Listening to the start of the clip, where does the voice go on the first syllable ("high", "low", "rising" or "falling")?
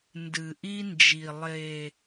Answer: low